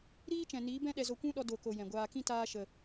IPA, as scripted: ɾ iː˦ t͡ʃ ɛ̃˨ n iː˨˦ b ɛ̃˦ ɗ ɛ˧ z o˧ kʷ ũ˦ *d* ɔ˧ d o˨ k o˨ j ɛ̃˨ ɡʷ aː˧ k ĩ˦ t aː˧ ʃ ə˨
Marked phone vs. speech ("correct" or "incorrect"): incorrect